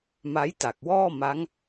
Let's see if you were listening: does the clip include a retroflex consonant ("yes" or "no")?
no